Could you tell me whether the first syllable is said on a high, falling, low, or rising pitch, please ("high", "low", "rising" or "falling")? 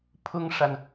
high